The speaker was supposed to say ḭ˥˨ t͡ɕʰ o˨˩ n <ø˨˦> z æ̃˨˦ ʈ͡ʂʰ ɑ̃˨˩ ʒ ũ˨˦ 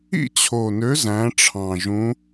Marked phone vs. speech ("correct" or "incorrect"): correct